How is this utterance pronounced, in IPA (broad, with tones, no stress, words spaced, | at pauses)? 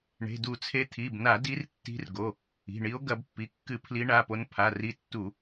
ɳe̤˩˧˩du˧˩˧t͡sʰe˨˦ t̪ʰi˩˧˩bna˧˩˧ di˨˦rtːi̤˨˦r ɡo˩˧˩ | i̤˩˧˩ɳi˨˦o̯ ɡɐ˧˩˧bpːi˩˧˩kːɨ˧˩˧ pʰli˨˦ɳa˩˧˩po˨˦n pʰa˩˧˩ri˨˦tːu˧˩˧